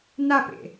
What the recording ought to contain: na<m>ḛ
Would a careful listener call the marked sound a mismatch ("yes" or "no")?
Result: yes